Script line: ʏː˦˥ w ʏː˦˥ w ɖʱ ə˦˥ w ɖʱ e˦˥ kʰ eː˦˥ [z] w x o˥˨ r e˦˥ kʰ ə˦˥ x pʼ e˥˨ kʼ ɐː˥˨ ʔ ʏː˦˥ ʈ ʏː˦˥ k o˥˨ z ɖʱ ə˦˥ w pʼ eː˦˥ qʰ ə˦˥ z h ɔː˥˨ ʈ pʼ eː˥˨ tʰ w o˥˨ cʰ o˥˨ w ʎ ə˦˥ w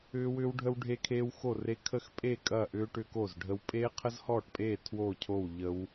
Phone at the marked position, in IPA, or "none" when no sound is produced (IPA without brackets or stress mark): none